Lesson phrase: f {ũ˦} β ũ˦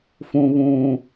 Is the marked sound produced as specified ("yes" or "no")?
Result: yes